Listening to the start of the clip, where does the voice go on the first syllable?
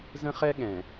high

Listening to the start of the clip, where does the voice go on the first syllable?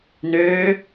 rising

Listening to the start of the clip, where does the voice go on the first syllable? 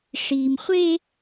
high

